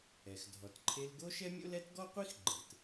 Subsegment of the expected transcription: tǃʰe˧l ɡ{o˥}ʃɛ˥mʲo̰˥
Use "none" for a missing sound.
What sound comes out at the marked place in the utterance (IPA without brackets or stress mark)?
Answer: o˥